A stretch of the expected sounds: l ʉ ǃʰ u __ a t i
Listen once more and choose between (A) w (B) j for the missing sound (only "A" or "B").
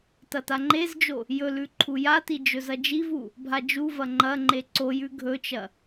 B